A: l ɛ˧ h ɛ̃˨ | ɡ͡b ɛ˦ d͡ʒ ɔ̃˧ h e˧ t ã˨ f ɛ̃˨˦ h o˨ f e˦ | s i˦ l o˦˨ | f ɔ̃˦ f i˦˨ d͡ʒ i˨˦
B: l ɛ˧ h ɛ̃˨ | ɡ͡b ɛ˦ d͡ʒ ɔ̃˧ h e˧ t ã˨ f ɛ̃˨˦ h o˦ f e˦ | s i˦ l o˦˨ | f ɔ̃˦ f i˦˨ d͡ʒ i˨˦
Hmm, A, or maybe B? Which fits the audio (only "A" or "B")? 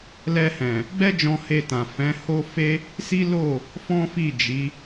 B